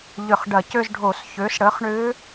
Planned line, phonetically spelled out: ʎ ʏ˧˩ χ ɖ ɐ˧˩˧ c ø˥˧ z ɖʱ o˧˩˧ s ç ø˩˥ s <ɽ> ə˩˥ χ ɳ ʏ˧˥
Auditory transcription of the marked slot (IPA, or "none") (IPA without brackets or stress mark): ɽ